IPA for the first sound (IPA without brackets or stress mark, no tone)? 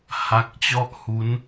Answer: h